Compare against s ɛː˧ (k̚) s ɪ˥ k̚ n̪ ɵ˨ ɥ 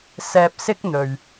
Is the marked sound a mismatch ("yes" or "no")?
yes